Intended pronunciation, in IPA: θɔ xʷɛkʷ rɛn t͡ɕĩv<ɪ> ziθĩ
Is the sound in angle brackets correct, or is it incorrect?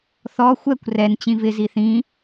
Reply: correct